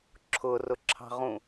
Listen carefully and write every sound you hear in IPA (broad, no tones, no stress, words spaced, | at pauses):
ǁʰʊrʊǁʰɑ̤ʁũ